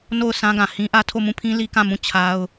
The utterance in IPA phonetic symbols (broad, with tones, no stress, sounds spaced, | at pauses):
n o˦˨ ʊ̯ s ã˦ ɡ ã˨ h ĩ˦ ʔ ä˦ tʰ o˦˨ m ũ˦˨ pʰ ĩ˦ l i˦ k ã˦˨ m ũ˦˨ t͡ɕʰ a˦ ʊ̯